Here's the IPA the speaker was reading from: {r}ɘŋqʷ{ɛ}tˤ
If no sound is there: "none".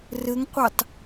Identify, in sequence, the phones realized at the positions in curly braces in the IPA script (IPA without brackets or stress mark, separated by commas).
r, ɛ